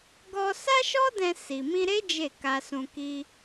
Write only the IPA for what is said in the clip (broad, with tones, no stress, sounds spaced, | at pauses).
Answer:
ɡ ɔ˧ s a˦ ʃ ɔ˦ d ɛ̃˧ s i˨ m ĩ˧ ɾ e˦ d͡ʒ e˦˨ k a˧ s ũ˧ k i˦